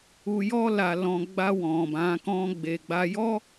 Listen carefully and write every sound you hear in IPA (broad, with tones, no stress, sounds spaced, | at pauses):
u˧ j ɔ˦ l a˧ l ɔ̃˧ ɡ͡b a˧ w ɔ̃˨ b ã˨˦ k ɔ̃˦ ɡ͡b e˧ ɡ͡b a˧ j ɔ˦